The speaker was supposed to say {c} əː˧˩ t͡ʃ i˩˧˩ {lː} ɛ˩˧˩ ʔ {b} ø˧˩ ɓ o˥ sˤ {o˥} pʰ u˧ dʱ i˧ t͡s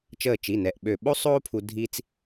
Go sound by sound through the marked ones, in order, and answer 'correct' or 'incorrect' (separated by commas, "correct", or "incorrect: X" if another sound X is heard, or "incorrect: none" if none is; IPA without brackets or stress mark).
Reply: incorrect: t͡ʃ, incorrect: n, incorrect: ɓ, incorrect: oː˥